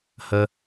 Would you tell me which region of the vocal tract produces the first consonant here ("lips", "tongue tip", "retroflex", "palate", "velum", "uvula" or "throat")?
throat